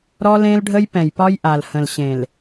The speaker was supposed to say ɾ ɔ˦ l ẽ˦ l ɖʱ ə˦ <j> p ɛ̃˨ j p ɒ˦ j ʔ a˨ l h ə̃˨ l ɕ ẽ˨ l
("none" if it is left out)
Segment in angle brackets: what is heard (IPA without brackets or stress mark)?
j